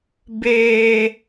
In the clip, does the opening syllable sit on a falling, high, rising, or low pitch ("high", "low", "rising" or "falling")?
low